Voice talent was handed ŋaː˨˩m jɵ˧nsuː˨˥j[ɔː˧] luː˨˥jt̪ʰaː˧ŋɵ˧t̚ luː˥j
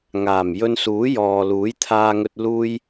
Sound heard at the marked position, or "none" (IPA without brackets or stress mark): ɔː˨